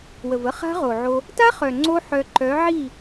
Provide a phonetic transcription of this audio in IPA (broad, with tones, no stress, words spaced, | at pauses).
wə˨və˦ χa̤˦ʁo˨ʕo˧ | ta˦χœ˨ ŋ͡ǀo˦ħœ˧ ǃœ˨˦ ʕi˦˨